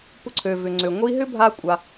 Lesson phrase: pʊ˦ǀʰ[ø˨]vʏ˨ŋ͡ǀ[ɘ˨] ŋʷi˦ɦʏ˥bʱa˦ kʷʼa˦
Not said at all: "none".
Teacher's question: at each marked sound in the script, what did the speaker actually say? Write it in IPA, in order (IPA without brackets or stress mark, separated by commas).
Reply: ø˨, ø˨